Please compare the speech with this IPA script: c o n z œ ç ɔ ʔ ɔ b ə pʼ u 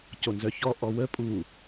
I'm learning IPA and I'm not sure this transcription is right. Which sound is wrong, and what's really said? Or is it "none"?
b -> w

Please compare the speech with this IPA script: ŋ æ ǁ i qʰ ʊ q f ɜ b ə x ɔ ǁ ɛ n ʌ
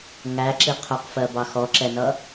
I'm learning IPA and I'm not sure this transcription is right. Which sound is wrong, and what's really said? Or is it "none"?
ə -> ɑ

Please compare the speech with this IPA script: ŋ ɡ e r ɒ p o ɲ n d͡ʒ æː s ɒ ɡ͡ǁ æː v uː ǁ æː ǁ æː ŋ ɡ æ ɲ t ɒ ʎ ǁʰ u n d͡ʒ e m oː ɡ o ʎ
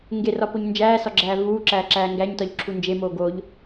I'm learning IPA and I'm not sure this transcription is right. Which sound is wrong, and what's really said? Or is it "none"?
none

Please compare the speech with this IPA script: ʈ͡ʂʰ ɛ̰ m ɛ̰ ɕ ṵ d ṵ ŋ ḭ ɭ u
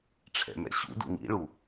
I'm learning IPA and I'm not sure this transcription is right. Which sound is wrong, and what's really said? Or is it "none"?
none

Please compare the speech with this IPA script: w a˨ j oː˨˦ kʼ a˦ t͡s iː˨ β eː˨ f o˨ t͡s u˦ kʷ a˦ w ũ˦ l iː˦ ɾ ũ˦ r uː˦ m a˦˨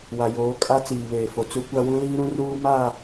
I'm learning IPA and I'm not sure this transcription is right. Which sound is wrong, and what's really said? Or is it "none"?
none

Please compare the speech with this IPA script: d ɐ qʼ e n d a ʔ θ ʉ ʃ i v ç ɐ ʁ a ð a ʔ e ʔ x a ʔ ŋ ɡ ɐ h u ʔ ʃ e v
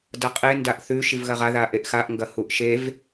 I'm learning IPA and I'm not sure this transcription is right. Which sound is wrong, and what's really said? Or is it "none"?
ç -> ɣ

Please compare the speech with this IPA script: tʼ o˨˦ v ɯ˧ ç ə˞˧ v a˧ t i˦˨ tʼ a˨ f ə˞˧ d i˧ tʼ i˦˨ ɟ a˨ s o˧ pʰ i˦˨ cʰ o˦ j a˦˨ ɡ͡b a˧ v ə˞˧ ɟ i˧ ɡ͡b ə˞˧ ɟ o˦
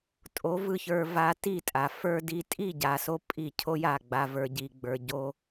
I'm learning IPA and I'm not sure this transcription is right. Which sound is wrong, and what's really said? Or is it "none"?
pʰ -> pʼ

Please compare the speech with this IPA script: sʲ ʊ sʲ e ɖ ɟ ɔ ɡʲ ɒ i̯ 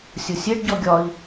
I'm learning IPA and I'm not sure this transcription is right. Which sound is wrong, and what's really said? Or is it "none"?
none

